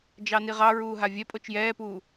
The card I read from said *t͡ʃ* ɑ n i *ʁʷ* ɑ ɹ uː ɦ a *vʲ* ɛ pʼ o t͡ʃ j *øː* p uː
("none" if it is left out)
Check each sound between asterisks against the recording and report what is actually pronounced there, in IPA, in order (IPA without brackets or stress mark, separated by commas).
d͡ʒ, ʁ, vʲ, ɛː